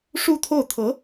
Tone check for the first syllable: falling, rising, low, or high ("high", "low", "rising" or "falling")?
falling